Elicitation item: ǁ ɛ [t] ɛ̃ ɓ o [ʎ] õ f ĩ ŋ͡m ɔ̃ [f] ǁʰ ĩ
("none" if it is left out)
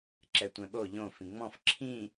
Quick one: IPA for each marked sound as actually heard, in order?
tʷ, ʎ, f

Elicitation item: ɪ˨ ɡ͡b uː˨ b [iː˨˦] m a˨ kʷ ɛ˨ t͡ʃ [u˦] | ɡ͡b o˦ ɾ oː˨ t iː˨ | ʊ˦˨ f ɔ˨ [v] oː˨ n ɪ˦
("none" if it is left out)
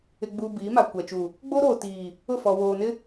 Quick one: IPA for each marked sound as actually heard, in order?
iː˨˦, u˨, w

